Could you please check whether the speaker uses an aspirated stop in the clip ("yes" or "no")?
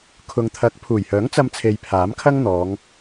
yes